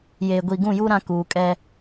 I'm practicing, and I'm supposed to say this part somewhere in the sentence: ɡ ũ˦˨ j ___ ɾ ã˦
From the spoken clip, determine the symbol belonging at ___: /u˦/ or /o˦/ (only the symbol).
u˦